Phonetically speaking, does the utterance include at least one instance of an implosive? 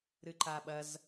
yes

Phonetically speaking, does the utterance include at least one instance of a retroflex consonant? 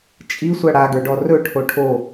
yes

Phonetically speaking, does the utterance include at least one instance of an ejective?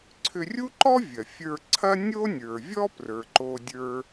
no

